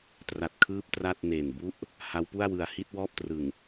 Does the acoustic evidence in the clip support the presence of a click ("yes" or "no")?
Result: no